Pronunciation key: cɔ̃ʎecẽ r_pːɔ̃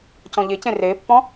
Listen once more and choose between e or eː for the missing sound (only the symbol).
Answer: eː